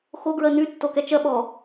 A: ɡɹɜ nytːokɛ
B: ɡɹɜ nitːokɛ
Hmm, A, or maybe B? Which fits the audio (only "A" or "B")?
A